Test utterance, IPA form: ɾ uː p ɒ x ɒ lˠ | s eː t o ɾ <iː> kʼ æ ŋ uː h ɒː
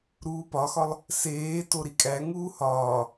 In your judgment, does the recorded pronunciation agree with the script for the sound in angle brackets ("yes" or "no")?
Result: no